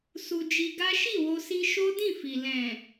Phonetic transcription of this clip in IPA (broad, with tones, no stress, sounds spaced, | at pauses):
s u˧ d͡ʒ i˧ ɡ a˦ ʃ i˦˨ w o˧ s i˧ ʃ o˦ d ĩ˦˨ f i˨ l ɛ̃˨